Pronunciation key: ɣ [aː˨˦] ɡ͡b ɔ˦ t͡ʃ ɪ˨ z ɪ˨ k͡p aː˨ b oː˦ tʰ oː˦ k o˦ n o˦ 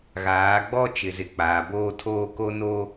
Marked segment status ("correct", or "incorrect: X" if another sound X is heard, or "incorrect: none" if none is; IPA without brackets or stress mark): correct